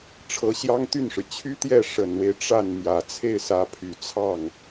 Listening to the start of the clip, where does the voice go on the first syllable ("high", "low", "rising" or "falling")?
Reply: rising